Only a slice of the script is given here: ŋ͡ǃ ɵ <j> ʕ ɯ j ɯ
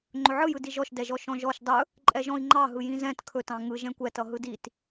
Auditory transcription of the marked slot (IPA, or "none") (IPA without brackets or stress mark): none